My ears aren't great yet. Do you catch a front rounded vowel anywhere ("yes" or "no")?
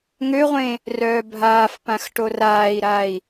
yes